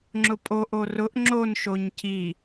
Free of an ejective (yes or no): no